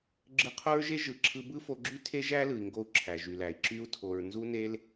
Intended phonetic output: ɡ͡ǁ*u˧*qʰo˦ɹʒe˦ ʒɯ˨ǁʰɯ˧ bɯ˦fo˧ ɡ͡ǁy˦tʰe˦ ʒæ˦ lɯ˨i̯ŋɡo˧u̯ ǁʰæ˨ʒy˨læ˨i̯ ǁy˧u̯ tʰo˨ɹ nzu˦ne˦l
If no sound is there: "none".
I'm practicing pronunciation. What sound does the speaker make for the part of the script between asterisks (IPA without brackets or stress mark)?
ɯ˧